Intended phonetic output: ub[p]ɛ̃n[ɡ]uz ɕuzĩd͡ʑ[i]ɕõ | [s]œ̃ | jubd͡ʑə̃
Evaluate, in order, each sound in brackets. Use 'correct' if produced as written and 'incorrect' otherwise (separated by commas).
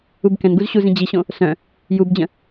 incorrect, correct, correct, correct